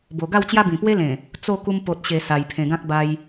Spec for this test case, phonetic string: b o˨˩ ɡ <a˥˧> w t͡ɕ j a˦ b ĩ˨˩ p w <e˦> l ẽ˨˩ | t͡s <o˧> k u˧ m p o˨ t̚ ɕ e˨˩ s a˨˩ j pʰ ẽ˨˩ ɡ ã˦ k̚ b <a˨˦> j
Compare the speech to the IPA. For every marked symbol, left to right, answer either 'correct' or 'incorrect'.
correct, correct, incorrect, incorrect

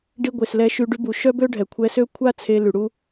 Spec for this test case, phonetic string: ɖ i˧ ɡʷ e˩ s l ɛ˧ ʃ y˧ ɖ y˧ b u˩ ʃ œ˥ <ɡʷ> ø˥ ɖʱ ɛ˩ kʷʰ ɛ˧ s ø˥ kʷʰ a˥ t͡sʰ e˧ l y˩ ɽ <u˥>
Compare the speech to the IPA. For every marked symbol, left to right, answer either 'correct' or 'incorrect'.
incorrect, incorrect

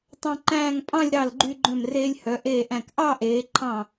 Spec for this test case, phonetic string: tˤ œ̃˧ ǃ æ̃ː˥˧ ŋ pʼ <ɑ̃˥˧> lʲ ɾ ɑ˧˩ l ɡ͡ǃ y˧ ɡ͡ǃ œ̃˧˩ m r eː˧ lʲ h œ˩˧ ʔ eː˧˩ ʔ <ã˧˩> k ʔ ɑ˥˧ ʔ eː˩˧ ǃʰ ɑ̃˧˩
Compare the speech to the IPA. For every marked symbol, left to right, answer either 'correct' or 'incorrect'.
correct, incorrect

